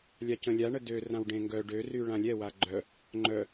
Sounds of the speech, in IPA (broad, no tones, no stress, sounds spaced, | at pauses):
lʲ a c ə̃ lʲ a ɳ ə d ø r ã w ɖ ẽ ŋ ɡ œ ɖ ø r y ɭ ã lʲ ɛ w a ɡ͡ǃ œ | ŋ͡ǃ œ